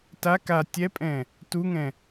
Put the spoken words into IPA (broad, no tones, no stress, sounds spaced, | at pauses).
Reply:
t a k a tʲ ɛ pʼ ɛ̃ | t u ŋ ɛ̃